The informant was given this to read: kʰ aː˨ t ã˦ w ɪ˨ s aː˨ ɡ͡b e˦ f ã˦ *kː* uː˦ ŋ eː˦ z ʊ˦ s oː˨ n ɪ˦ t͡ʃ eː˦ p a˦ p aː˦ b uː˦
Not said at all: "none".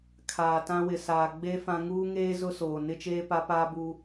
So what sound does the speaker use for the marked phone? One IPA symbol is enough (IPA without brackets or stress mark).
ŋ